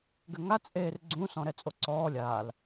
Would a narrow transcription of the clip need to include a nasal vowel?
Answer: yes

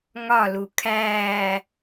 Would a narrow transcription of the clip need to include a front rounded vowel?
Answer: no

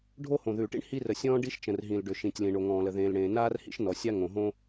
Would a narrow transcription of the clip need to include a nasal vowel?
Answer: yes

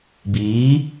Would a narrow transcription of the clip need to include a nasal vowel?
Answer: no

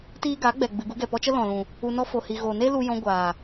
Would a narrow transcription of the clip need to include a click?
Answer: no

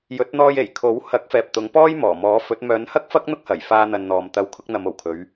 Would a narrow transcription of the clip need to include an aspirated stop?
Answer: yes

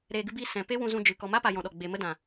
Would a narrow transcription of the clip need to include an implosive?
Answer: yes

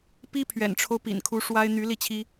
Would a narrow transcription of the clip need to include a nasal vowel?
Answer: no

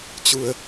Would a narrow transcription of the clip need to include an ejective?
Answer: no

